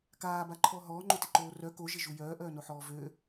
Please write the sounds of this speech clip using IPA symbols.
k aː b a ǃʰ ɔ ɦ ɔː ŋ͡ǃ o t ɪ ǃ oː r œ k o ʒ ɪ ʒ u j œː ʔ œː n o ħ ɔː v ø

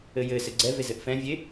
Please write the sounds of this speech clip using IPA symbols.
ɘ j ɘ s ɘ ɡ͡ǀ ɛ v e z ɘ ʔ f ɛ̃ vʲ e

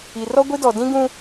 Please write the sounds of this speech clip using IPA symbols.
i˨ r ɔ˦ ɡʷ i˦ d ɔ˨ d ĩ˦ ɡ ũ˦

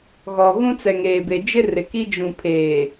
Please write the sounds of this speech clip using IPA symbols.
ɣ ɔ˨ ɣ ũ˦ t͡s ɛ˨ ŋ eː˨ b e˨ d͡ʒ ɪ˦ r ɪ˨ k i˦ d͡ʒ ũ˨ pʰ eː˨

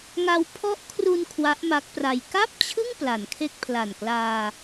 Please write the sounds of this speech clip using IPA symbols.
ŋ a˧ w pʰ ɔ˦˥ ʔ kʰ r u˧ n kʰ w a˦˥ ʔ m a˦˥ k̚ p r a˧ j k a˥˩ p̚ t͡ɕʰ ɯ˥˩ ŋ p l a˩˦ n kʰ e˥˩ k̚ pʰ l a˨˩ n k l aː˧

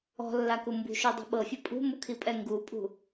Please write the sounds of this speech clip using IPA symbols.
ɔ̤ lː a k u m b ṳ ʃ o dˤ ṳ ɓ ɤ fʲ ɤ pʼ ṳ m u kʰ i pʼ ɛ ŋ ɡ u pʼ ṳ

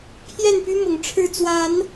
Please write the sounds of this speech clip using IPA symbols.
pʰ j ɛ˥˨ n p y˦ m ʊ˨˦ ŋ ʈ͡ʂʰ ɻ̩˥˨ t͡s w a˨˦ n

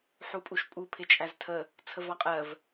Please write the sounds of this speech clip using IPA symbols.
ħ u pʼ u ʃ pʼ u pʰ ɪ t͡ʃʼ æ z tʰ ə | t͡sʰ ə v ɑ qʼ ɜ v

